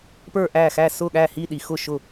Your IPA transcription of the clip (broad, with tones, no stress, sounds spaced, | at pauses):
p ə˞˥˨ ʔ æ˥˨ x æ˥˨ s ʊ˥˨ ɠ æ˥˨ h i˥˨ ɗ i˨˦ x ʊ˥˨ ʃ ʊ˥˨